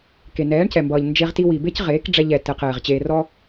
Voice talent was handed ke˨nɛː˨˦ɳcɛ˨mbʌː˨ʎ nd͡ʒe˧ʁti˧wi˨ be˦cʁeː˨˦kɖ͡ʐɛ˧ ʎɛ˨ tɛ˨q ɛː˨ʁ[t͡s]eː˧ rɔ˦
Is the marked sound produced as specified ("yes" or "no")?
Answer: no